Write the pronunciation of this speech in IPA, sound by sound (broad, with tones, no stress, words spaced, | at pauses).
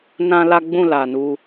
nã˦ la˦ɡ͡bũ˦˨ la˨nu˧